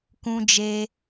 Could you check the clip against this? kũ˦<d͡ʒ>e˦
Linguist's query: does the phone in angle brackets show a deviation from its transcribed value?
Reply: no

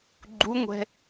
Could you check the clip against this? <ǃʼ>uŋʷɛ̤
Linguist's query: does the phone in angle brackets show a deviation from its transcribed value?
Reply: yes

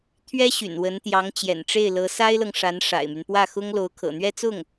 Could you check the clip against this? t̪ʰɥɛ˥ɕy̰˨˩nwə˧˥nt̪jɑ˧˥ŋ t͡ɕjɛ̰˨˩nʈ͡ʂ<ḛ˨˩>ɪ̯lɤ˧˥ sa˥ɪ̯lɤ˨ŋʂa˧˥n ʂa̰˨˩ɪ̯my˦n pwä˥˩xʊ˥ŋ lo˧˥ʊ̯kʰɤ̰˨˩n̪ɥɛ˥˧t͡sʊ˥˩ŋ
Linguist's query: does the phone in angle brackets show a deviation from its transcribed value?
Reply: yes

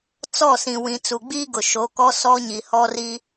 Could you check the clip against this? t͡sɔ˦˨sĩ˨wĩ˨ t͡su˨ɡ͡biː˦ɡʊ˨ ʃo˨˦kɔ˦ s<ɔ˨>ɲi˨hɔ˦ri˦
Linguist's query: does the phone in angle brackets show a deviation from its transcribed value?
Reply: yes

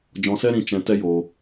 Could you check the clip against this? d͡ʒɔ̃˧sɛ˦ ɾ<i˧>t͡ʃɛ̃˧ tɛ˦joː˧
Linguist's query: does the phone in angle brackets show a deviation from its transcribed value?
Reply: yes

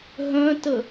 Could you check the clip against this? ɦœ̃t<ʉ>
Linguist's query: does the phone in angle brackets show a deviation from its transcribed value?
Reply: yes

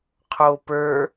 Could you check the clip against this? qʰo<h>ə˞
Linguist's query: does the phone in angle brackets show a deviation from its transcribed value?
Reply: yes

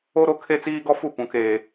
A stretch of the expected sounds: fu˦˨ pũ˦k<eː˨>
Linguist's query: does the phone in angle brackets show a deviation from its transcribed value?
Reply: yes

